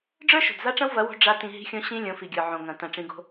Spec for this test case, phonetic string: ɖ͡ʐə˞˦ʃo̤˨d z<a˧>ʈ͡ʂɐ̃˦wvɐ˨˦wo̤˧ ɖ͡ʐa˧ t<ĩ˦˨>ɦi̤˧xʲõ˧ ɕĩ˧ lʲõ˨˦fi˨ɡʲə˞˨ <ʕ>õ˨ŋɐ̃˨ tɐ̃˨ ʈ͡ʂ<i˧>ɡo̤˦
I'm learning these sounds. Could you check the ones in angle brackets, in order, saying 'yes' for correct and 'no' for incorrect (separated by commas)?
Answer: no, no, yes, no